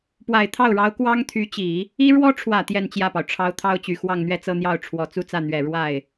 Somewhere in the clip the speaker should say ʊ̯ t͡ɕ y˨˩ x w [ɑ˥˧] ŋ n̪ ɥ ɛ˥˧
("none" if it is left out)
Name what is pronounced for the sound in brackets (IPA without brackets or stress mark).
ɑ˥˧